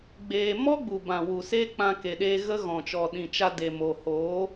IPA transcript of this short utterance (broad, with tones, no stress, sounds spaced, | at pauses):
ɡ͡b eː˧ m ɔ˦ ɡ͡b u˨ b ã˨ w u˨ s eː˦ k͡p ã˧ k e˨ ɗ eː˧ ɣ ə˦ ɣ ɔ̃˨ t͡ʃ ɔ˨ ɗ ĩ˨ t͡ʃ a˧ d e˨ m o˨ h oː˨˦